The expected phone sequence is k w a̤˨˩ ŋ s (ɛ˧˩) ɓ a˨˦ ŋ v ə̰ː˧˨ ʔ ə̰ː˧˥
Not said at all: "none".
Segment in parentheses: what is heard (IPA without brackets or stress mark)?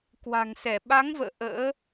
ɛ˧˩